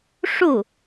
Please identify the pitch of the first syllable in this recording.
falling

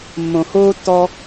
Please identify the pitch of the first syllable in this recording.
low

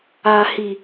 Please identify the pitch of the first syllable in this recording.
low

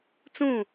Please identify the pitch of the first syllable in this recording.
falling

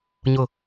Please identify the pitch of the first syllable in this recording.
low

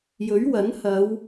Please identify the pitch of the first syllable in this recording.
rising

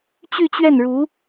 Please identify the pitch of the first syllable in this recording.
falling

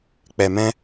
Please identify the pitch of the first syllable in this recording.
low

